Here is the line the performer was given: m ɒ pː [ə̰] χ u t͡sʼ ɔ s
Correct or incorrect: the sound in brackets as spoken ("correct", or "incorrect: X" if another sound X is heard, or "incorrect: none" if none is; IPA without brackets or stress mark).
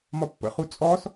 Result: correct